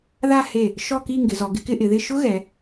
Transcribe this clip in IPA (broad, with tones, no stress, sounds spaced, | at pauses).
ð a˥˧ h e˧˩ | ʃ ɔ˥˧ k i˥˧ ŋ ɡ ɪ˩˧ z ɔ˩˧ ɡ ɪ˥˧ k ɪ˥˧ ʔ ɪ˩˧ ð ɪ˥˧ ʃ ʊ˥ ɣ ɛ˩˧